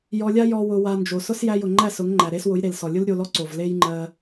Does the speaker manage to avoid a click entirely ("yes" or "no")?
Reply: no